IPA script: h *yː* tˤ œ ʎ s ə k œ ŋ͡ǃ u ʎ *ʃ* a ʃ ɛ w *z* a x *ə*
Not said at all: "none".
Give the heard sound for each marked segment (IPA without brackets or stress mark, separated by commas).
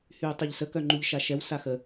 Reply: yː, ʃ, s, ə